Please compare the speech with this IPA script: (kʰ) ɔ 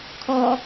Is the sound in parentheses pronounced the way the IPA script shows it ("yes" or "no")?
yes